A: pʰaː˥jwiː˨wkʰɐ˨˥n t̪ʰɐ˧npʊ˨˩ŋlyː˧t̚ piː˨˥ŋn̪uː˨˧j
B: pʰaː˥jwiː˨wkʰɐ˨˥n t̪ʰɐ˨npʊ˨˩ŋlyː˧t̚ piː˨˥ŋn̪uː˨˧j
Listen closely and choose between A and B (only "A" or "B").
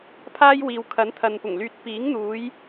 B